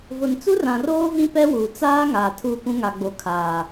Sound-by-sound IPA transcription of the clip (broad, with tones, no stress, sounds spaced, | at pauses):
v ʊ˨ n t͡s u˦ r ã˨ r oː˦ v ĩ˦ p ɛ˦ w uː˨ t͡s aː˦ ŋ aː˨ tʰ u˦˨ p ũ˦ ŋ a˨ ɡ͡b o˨ kʰ aː˨